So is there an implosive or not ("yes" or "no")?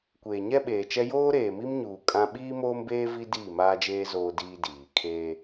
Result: yes